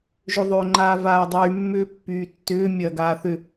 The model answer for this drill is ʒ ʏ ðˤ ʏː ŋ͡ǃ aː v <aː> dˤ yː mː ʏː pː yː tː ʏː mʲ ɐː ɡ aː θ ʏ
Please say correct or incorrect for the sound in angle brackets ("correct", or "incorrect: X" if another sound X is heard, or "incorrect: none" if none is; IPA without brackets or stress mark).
correct